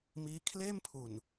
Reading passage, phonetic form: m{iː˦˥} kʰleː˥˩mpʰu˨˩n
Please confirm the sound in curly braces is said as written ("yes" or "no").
yes